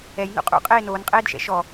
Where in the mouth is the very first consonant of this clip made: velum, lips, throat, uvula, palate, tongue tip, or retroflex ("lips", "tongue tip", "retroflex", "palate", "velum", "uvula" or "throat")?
palate